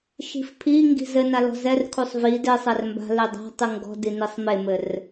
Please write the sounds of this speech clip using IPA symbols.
ʃ i̤ f pʰ i ŋ ɡ i̤ z ɘ n a l ɔ̤ z ɛ r kʰ u sˤ v i d e sˤ ɛ r m b a̤ l e dˤ a̤ tˤ ɨ ŋ ɡ ɔ̤ d i n i sˤ m e m ɘ r

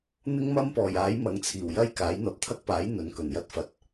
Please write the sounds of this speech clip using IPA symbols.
n̪ ɪ˥ ŋ m ɐ˥ m p ɔː˨˩ j aː˨˥ j m ɐ˨˥ ŋ t͡sʰ iː˨˩ w j ɐ˥ j k aː˨˥ j n̪ ɐ˧ p̚ t̪ʰ ɐ˥ k̚ p aː˨˥ j n̪ ɵ˨˥ n k ɵ˨˩ n j ɐ˥ t̚ f ɐ˨˥ t̚

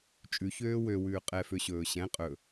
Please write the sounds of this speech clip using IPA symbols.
t͡ʃʼ ʉ ç øː w ø w ʉː qʼ ɛ f ø ɕ ɵː ɕ ɛ̃ qʼ ɵ

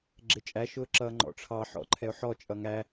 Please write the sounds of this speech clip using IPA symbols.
ɡ͡ǁ ɪ t͡ʃʼ æ ʃ ʊː ǁ ʌː ŋ͡ǃ ɔ̰ ʈ͡ʂʰ ɑ ħ ɔ̰ ǃʰ ɛ ʊ̯ ħ ɔ t͡ʃʼ ʌ ŋ æ

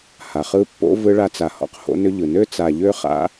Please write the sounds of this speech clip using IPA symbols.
h a˨ χ ɯ˦ pː o̰˦ v ɯ˦ ɭ a˦ t͡s a˨ h ɔ̰˦ q h o̰˦ n ʏ˦ ʎ ɯ˨ n ø˦ t͡s a˨ ʎ ø˦ χ a̰˦

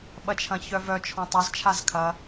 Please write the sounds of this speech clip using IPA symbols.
ɓ ɐ t͡ʃʰ ɐ̃ ç œ v œ t͡ʃʰ ɔ̃ tˤ ɐ z t͡ʃʰ a z kʰ ɐ

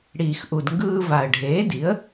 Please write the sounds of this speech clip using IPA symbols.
ɽ iː˩ x ʔ u˩ d ŋ ɡ ɯː˧ v a˩ ə̯ ɖʱ eː˩˥ d i˩˥ ə̯

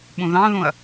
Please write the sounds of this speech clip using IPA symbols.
ɓ ũ ð ɑ̃ ð ũ ɐ̯

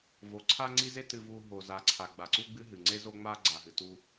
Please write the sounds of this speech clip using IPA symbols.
v o˨ ǀʰ a˦ ŋ͡ǀ i˦ z e˦ t ɨ˨ v u˨ ɦ o˨ z a˨ ǀʰ a˨ ɡ͡b a˨ ǀ u˦ ɡ͡b ɨ˦ ɦ ɨ˨ ŋ͡ǀ e˦ z o˦ ŋ͡m a˦ ɡ͡ǀ a˨ ɦ ɨ˨ t u˦

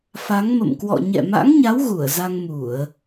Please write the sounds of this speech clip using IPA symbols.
f a˨˦ ŋ m ə̰˧˨ m k w ɔ̰˧˨ ɲ ɛ̰˧˨ m a̰˧˥ ŋ ɲ a˨˦ w ɣ u˧˩ ə̯ z a˧ ŋ m u˧˩˨ ə̯

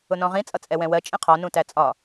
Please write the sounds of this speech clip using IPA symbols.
ʊ n ɔ̃ ʁ ĩ t͡sʼ ʌ t͡sʼ ɛ w ɛ̃ w ɜ t͡ʃʼ ĩ qʰ ɔ n ũ t æ t͡sʼ ɒ

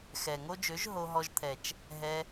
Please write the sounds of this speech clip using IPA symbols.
x ɛ˨ ŋ o˦ d͡ʒ ø˨˦ ʒ ɦ o˧ ɦ ɔ˧ ʒ t̪ʰ ɛ˨ t͡ʃ | ɦ ɛ˧

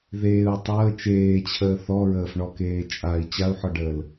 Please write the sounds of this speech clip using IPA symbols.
ð eː u̯ tˤ əː t͡ʃ eː t͡ɕʰ əː θ ɔ ɹ əː f ɳ ɔ k eː t͡ʃʼ a i̯ t͡ɕ a u̯ ħ ɔ ɖ əː l

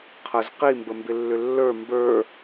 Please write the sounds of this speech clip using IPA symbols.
qʰ ə z q i m b ə m b ɪ lː ʏ lː ə˞ m b ə˞

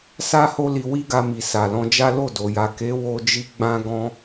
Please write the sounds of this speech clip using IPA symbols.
s a˦ h o˦ l i˧ w i˦ ɡ a˧ m i˨ s a˨ l ɔ̃˧ d͡ʒ a˦ l o˦˨ d o˨ j a˨ k e˨˦ w o˧ d͡ʒ i˧ ɡ͡b ã˧ ɡ ɔ̃˧

